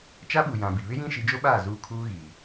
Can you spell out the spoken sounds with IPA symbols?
t͡ʃ a˦ ɓ u˨ j ã˨ b i˨ β ɪ˦ j ĩ˦ ʃ i˨˦ d͡ʒ o˦ ɓ aː˦˨ z uː˦ kʰ uː˦ ɣ iː˨

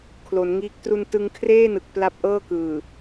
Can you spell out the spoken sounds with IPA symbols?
kʰ l o˩˦ n ŋ iː˦˥ k̚ t r u˧ n t ɯ˧ ŋ kʰ r eː˥˩ n ɯ˨˩ k̚ p l a˦˥ p̚ ʔ ɤː˥˩ k ɯː˨˩

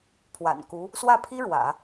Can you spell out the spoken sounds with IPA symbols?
pʰ w a̰˨˩ n k u˧˥ | s w ä˥˩ pʰ i˥ ɻ w ä̰˨˩˦

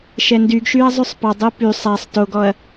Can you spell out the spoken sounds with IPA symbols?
ʃ ɛ n d y ɡ ʃ y ɐ̯ zˤ y sˤ p ɑ dˤ o p y sˤ a sˤ t o ɡ ɔ ɐ̯

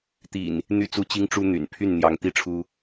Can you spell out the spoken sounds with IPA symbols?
t̪ ḭ˨˩ n | n̪ y˥˨ t͡s u˥˨ t͡ɕ i˦ ŋ ʈ͡ʂ u˦ n̪ y̰˨˩ n pʰ y˥˨ n n̪ j ɑ˨˦ ŋ t̪ i˥˨ ʈ͡ʂʰ u˦

